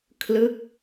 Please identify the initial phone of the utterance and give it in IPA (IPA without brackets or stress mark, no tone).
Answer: kʰ